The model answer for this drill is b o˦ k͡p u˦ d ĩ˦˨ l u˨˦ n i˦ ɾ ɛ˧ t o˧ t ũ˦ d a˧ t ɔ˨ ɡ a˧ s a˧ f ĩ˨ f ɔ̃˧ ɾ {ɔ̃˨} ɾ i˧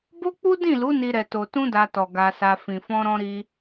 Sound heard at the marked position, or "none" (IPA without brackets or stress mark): ɔ̃˧